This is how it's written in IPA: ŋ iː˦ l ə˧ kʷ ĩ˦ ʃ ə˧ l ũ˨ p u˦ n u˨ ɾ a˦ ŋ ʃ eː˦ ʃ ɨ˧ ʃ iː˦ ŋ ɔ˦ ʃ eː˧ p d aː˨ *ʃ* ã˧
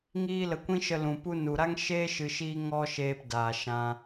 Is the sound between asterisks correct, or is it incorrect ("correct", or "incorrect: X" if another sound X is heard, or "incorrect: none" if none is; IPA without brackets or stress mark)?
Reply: correct